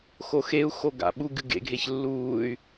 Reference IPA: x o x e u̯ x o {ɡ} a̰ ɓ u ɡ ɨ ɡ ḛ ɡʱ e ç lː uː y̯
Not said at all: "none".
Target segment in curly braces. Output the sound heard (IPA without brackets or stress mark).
ɡ